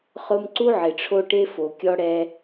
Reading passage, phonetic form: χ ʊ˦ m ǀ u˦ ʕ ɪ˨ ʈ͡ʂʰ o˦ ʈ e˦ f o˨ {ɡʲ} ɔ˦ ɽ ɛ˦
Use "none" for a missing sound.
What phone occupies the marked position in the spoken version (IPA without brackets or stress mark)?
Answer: kʲ